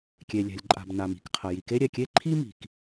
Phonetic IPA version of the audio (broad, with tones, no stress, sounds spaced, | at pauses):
kʲ e˩ lʲ ɛ̤˩ lʲ ǃʼ a̤˩ b n a˩ m i̤˩ k qʰ ɐ˩ j i˩ k e˥ ɾʲ ɛ˩ kʲ e˥ ǃʰ i˥ m i̤˩ k